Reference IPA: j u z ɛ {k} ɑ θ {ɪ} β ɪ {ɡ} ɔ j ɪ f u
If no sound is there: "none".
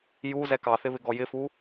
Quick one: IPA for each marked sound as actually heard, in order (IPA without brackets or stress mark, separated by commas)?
k, ɪ, ɡ